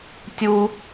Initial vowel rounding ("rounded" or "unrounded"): rounded